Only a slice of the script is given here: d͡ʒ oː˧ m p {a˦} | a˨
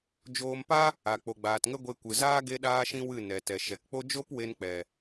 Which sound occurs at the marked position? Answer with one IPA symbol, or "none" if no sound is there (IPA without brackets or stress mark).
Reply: a˦